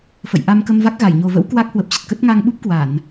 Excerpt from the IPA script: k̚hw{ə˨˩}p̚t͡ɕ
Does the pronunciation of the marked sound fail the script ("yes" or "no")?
no